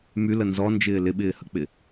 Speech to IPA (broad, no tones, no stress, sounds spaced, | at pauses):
m y l ə n z ɔ n d͡ʒ ɪː l ɪ ɓ ɪː h ə k͡p ɪ